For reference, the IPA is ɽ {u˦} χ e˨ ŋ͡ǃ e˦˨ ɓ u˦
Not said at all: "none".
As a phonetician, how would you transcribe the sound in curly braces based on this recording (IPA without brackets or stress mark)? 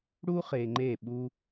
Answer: u˦